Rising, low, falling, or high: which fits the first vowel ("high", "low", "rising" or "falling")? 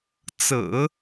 low